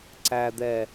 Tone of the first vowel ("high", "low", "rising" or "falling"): low